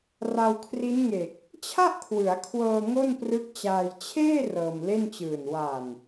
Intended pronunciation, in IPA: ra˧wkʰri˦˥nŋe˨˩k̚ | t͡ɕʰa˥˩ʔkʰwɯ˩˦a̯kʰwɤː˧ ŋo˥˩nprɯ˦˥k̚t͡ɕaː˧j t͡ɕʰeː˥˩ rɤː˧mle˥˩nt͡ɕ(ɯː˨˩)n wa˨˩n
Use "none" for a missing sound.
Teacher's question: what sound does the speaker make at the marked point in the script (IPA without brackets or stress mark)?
ɯː˨˩